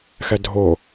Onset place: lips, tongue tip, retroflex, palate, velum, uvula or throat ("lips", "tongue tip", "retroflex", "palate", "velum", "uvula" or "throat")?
velum